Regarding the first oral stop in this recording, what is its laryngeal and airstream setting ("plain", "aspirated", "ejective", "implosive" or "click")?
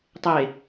plain